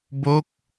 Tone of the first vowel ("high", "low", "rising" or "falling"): falling